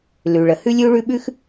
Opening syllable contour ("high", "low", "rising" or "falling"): low